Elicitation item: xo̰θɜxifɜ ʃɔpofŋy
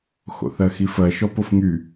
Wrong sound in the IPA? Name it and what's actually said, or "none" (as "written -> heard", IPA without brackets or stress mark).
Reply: none